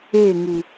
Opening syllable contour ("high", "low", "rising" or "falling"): falling